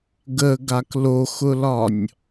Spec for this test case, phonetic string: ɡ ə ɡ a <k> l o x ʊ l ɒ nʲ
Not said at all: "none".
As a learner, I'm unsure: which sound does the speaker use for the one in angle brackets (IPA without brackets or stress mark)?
k